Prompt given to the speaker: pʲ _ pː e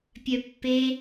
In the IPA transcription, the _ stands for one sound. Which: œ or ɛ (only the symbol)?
œ